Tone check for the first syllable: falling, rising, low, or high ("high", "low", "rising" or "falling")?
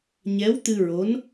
rising